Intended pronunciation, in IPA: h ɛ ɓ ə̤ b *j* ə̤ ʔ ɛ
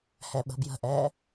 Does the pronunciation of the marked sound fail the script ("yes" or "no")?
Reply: no